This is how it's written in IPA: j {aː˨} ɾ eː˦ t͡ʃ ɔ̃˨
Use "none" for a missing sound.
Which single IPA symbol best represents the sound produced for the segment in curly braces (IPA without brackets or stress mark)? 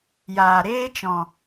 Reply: aː˨